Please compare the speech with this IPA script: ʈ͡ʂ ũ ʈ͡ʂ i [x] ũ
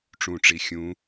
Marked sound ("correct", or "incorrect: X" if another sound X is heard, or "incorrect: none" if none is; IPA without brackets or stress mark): incorrect: xʲ